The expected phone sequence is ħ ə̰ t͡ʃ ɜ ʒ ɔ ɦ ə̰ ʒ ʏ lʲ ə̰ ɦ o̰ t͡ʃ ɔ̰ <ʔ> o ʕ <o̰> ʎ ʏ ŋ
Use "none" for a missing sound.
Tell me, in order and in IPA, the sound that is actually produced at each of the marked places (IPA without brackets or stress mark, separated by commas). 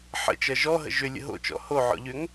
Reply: h, ɔ̰